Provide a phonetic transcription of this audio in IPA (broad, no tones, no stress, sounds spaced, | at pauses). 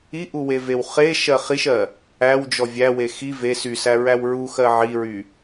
i ʔ u w e v e w χ e ʃ ɜ χ i ʃ ɜ | æ w d͡ʒ ɔ vʲ æ w e x i v e s y s æ ɹ æ w ɹ u x ɜ ʕ i ɹ y